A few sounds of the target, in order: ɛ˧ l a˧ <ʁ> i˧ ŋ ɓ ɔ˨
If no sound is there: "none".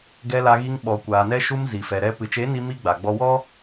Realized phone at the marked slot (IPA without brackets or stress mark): ɣ